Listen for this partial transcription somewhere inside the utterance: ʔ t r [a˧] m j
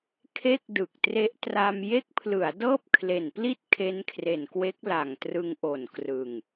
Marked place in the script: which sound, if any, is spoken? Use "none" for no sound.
a˧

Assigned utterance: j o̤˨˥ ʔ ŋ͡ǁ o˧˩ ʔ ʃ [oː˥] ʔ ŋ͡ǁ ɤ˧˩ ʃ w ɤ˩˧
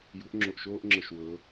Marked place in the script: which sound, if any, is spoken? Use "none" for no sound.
oː˥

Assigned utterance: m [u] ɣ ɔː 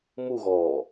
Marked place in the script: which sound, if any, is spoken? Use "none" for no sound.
u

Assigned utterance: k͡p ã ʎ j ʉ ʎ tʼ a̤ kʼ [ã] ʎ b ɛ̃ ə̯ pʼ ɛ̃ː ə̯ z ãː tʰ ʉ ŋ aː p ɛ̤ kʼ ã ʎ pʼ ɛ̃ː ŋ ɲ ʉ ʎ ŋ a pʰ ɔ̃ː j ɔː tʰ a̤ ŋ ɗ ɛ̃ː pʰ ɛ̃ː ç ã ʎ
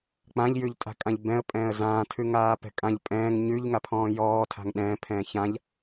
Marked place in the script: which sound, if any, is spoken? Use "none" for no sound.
ã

